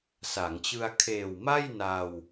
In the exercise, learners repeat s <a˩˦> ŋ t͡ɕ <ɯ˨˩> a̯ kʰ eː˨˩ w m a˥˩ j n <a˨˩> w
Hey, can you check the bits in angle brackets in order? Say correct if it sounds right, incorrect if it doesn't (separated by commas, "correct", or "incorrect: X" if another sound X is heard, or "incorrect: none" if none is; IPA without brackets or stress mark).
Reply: correct, incorrect: ɯ˧, incorrect: a˧